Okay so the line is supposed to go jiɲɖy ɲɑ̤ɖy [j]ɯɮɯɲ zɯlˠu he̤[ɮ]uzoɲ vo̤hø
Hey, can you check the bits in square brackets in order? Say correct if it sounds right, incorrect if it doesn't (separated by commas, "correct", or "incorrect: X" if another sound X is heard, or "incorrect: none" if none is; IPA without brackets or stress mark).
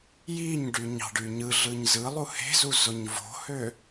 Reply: incorrect: ɲ, incorrect: z